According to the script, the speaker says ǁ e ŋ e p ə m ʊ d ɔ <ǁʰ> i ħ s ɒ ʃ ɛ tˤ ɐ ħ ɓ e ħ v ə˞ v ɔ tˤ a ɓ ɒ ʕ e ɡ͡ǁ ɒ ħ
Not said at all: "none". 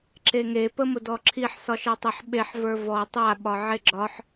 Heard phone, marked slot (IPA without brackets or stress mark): ǁʰ